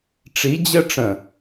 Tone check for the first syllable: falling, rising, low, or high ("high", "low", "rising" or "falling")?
rising